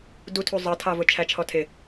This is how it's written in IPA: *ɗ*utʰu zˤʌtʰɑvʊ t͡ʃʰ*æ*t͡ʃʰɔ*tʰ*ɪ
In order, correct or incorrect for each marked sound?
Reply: incorrect: d, correct, correct

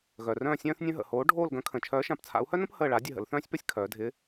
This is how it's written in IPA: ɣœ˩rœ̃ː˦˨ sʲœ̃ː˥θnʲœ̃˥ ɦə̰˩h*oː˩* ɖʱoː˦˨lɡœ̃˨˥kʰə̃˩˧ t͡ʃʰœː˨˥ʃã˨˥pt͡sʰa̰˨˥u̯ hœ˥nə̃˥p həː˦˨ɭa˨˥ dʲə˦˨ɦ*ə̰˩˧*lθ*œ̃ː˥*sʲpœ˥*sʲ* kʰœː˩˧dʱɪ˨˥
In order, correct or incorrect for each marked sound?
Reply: incorrect: oː˨˥, correct, correct, correct

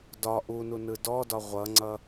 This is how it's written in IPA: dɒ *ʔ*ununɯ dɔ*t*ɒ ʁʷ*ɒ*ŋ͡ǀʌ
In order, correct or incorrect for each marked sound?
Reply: correct, incorrect: d, incorrect: ʌ

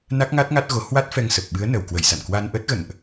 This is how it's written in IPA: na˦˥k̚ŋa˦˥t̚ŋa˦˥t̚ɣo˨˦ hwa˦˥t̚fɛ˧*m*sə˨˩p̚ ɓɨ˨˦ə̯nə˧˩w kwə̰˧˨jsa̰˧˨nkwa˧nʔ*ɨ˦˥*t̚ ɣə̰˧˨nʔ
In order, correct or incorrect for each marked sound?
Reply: incorrect: ŋ, incorrect: ə˦˥

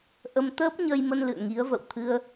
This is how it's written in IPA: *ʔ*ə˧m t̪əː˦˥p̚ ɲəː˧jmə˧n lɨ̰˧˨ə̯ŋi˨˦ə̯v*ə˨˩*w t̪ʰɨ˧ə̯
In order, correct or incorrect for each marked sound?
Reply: correct, incorrect: ə̰˧˨

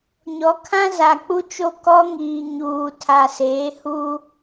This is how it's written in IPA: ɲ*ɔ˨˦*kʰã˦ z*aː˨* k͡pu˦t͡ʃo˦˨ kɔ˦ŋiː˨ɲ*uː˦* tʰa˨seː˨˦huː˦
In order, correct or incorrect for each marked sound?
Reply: correct, incorrect: a˨, incorrect: uː˨

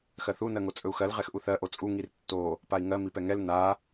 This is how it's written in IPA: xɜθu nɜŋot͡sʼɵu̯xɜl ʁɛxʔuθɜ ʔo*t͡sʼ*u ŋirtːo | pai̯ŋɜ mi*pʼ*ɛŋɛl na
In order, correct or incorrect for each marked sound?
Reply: correct, incorrect: p

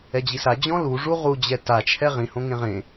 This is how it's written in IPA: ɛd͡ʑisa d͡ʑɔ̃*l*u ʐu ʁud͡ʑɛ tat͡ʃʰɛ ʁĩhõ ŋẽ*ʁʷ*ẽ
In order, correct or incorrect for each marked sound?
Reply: correct, incorrect: ʁ

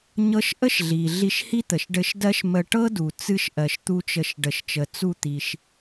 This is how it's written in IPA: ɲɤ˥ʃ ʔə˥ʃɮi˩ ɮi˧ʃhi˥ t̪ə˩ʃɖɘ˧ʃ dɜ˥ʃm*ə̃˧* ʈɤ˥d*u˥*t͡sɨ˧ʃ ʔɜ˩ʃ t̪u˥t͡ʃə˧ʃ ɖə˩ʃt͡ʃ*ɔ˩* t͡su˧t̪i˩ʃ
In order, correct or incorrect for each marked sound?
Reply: incorrect: ə˧, incorrect: u˩, incorrect: ə˩

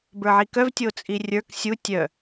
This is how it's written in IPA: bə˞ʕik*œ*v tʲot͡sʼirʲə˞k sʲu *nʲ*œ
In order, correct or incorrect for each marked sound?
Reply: correct, incorrect: tʲ

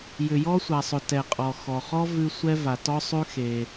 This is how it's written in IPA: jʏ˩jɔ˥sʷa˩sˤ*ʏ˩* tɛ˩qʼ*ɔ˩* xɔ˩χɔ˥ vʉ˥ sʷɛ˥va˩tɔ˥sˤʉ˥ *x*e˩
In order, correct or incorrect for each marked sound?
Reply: correct, correct, correct

